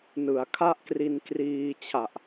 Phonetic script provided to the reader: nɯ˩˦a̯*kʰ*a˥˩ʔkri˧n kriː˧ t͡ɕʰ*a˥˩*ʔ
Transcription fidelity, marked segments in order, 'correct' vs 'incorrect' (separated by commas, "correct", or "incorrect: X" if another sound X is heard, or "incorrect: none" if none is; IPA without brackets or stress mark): correct, incorrect: a˨˩